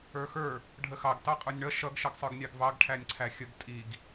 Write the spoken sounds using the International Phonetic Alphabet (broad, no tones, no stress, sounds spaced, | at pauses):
ə˞ x ə˞ | ɖʱ ə x ɑ ɡ t ɑ qʼ ə˞ nʲ ɳ ʌ ʃ ʌ ɡ ʃ ʌ ɡ sˤ ə˞ ɡ nʲ ɑ ɡ v ɑ ɡ ʈʰ æ nʲ ǀʰ æ xʲ ə ɡ tʼ i ɡ